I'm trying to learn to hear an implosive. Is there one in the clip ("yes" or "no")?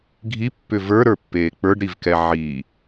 no